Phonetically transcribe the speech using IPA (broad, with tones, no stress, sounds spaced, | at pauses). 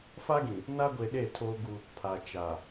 f a˦ ɡ ĩ˨ | n a˦ ɡʷ e˨ ɗ e˦˨ tʰ oː˦ ɡ u˦ | pʰ a˨ t͡ʃ aː˨